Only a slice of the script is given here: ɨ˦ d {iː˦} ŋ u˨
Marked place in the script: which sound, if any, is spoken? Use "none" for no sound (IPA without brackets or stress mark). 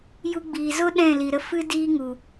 iː˦